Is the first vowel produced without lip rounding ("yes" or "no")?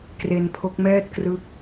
yes